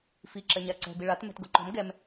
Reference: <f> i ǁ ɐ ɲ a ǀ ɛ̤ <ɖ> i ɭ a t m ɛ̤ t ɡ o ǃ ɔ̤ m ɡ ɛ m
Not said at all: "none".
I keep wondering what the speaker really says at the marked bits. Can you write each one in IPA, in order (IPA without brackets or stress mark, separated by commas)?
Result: f, b